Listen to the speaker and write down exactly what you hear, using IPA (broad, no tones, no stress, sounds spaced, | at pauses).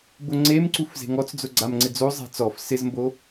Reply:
b ʊ ŋ͡ǀ e m ǀ u f z e̤ ŋ ɔ t͡s d͡z ʊ ɡ͡ǀ a m ŋ͡ǀ ɪ d͡z o zˤ ɛ̤ t͡s ɔ f s ɪ z m b o